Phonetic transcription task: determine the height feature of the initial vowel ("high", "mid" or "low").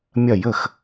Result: low